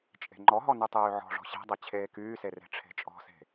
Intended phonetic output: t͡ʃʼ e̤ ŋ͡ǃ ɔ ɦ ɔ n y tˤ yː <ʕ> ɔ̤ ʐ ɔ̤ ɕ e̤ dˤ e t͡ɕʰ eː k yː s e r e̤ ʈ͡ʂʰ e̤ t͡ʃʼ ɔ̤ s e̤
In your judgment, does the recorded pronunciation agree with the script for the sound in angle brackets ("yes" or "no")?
yes